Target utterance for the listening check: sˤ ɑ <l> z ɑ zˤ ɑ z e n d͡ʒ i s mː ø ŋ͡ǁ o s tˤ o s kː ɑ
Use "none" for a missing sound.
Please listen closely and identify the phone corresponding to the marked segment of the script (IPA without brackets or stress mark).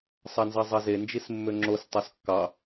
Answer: n